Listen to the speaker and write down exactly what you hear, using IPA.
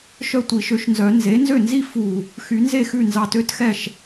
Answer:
ʃ œ˥˩ tʷ i˨˩˦ ʃ ø˩˥ ʃ n z œ˨˩˦ n z e˩˥ n z ø˥˩ n z i˥˧ f u˧˩ | x y˨˩˦ n z e˥˩ x ʉ˥˩ n z ɑ˧˩ t ø˥˧ t x ɛ˥˩ ʃ

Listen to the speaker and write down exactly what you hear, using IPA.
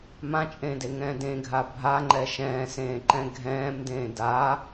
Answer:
m ã t͡ʃʼ ẽː d e ŋ ɛ̃ː d ẽ ɡʱ a bʱ a ŋ͡ǃ ɛ ʃ ɛ̃ː s ẽː ǃ ɛ̃ ɡʱ ɛ̃ː m d ẽː d aː

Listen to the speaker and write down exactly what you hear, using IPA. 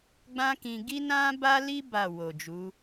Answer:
ɡ͡b ã˦ k ĩ˧ ɡ i˦ n ã˦ b a˦ l i˦ b a˦˨ w o˨ d͡ʒ u˨˦

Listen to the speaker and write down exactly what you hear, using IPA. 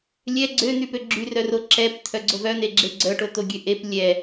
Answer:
lʲ ɛ ɡ͡ǀ ø n̪ y p ø ɡ͡ǁ y r œ r o ǁ ɛ p tʰ œ ɡ͡ǀ o v œ n̪ e ɡ͡ǁ e ɡ͡ǀ œ ʈ o t̪ o ɡʲ ø ʔ e p lʲ ɛ

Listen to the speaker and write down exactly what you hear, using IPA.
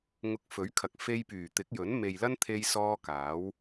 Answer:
ŋ ʊ˨ k̚ f ɵ˨˥ ɥ kʰ ɐ˨ k̚ f e˧ j p yː˨˩ t̪ ɪ˨˥ k̚ j ɵ˨˥ n m e˨ j l ɐ˥ n t̪ʰ e˧ j s ɔː˧ k aː˨˥ w

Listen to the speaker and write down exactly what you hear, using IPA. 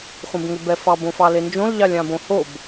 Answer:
χʷ ɛ̃ b ŋ ʏ b ɛ f ɑ b õ f ɑ l e n d͡ʒ õ l ʎ ɑ lʲ ã b õ h o b

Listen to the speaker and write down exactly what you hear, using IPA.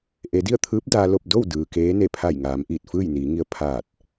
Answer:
ʔ e˩˧ d i˥˨ ə̯ t̪ʰ ɯː˧˥ p̚ d aː˧ l o˥˨ p̚ d o˥˨ w d ɯː˩ k eː˧˥ n e˧˩ pʰ a˧˩ j ŋ aː˩˧ m ʔ iː˧˩ t̚ f ɯː˥˨ j n iː˩˧ ŋ i˧ ə̯ pʰ aː˧˩ t̚

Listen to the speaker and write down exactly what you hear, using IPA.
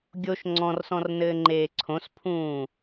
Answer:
ɡʲ o ʃ ŋ͡ǀ ɔ̃ r s ɔ̃ r n ɘː ŋ͡ǃ eː ǀʰ õ s pʰ ũː

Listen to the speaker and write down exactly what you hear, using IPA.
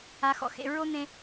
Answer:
a˨˦ x ɔ̰˨ x ḛ˦˨ ɹ o˦ n̪ ẽ˧

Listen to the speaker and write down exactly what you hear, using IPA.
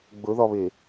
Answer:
ɡ͡b ɵ ð ɒ β e

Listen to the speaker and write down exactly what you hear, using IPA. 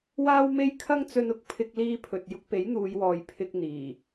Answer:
w aː˥ w m e˥ j kʰ ɐ˥ ŋ t͡s ɵ˧ n ʊ˨˥ k̚ pʰ ɪ˧ k̚ l iː˧ pʰ ɵ˨ t̚ j ʊ˧ k̚ p e˨˥ j n̪ uː˨˧ j w ɔː˨ j pʰ ɪ˧ k̚ n̪ iː˨˩

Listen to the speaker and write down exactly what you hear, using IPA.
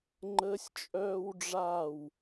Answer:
ŋ͡ǃ əː˥ sʲ t͡ʃʼ œː˥ w ɖ͡ʐ aː˥˨ w

